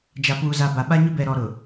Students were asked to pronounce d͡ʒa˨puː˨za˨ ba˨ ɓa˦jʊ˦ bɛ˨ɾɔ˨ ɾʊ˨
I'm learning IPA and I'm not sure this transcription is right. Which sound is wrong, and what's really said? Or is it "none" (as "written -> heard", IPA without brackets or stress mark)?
j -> ɲ